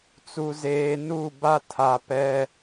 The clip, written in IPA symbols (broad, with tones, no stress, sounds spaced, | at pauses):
t͡s u˨ z eː˨ n u˦˨ b a˦ tʰ a˨ p ɛ˦